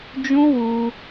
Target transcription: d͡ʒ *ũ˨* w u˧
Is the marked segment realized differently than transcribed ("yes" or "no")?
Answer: yes